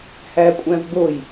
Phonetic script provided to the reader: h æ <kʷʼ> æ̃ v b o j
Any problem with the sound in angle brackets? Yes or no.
no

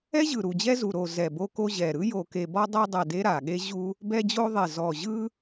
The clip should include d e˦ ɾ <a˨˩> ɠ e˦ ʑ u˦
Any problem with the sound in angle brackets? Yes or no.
no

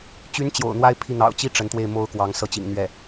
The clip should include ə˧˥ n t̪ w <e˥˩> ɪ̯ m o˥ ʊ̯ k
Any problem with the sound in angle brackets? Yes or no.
no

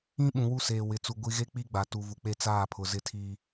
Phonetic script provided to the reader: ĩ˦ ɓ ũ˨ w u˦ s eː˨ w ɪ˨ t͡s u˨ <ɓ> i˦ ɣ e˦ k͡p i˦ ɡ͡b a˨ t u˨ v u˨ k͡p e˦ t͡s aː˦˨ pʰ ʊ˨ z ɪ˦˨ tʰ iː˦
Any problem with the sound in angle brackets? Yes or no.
yes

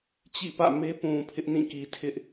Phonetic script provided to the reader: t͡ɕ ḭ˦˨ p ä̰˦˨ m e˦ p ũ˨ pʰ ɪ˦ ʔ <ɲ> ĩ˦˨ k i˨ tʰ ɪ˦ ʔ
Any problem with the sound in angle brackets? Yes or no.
yes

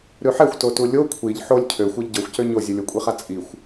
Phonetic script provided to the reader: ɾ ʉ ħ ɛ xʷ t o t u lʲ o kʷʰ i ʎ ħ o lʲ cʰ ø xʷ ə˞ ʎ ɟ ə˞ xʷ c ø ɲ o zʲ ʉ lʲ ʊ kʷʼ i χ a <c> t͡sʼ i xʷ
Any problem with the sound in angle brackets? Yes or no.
yes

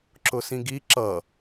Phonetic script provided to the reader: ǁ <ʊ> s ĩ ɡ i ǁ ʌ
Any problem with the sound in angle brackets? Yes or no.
no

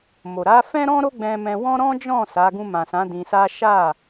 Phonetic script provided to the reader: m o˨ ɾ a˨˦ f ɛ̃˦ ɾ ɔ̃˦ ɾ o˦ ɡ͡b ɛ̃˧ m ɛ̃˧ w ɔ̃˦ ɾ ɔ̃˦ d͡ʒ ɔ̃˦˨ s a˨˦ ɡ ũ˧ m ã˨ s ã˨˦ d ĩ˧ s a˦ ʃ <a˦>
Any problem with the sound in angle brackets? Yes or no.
yes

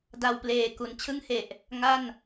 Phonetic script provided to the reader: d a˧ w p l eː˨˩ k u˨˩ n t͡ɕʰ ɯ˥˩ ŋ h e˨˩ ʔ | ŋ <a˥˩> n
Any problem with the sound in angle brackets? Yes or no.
no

